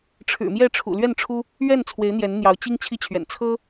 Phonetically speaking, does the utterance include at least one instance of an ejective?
no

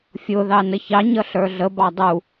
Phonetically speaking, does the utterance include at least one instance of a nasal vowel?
no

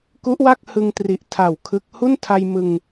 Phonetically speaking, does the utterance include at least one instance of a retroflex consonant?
no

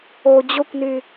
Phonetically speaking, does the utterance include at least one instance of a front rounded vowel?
yes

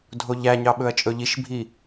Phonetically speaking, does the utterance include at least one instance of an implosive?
yes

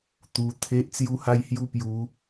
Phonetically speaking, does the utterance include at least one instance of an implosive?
no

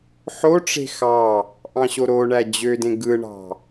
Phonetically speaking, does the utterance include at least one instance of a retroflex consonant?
yes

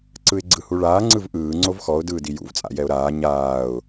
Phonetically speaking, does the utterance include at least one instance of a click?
yes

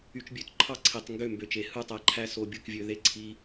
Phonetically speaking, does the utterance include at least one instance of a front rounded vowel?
yes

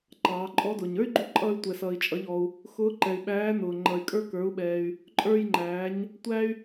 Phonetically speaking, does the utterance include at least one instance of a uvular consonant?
no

